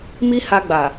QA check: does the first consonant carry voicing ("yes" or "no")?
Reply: yes